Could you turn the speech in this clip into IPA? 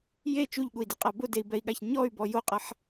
je t͡ʃuʎɠui̯diqʼa bʊdei̯bɛi̯ɠaç ɲɔy̯bɔ joqʼaħ

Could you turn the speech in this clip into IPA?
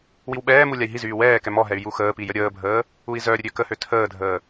wiwɓɛːmu lʲai̯ɦizyː wɛːkɛ mɔɦɛy̯ juxəːpi jəɾʲəːbʱəː | ui̯zœɾʲə ɾʲøkəhø tʰəːdʱəː

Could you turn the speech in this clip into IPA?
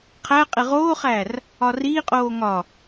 qʰæ qʼeʁoːχæːr | ɒriːqʼoː ŋɒ

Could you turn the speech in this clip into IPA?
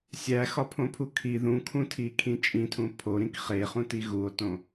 sʲæxɒpʰõpʰu kʰi ðũkʰũtʰikʰĩ t͡ʃʼĩtʰũ pʰoɾĩk χeχũti ɣuo̯tõ

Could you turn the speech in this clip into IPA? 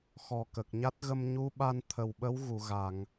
xɔ˨˩kə˨˩k̚ɲa˦˥t̚ ɣə˧mɲu˧˥ɓa˧n t̪ʰə˨˩wɓə˧˥w ɣu˨˩˨ ɣa˨˩˨ŋ

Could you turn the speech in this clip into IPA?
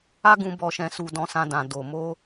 a˦ ɡũ˧ bɔ˧ʃɛ̃˧su˧ dɔ̃˧sã˧dã˨ do˨ mo˧

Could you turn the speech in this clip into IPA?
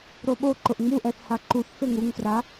ɾoɓoǃʊʔ ŋ͡muʔɛθ haǃuθfeŋ uŋfra

